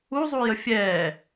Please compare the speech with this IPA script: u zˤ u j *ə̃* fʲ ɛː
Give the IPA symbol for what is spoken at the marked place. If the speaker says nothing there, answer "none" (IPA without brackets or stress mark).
ə